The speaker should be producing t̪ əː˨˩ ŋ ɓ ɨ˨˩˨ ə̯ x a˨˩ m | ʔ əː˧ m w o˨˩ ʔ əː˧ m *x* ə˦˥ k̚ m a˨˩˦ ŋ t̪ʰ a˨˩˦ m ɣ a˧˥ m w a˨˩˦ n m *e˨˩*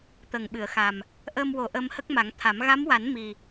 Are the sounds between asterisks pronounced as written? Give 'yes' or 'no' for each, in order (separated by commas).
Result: no, no